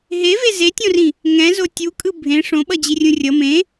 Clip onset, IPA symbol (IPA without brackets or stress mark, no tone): ɦ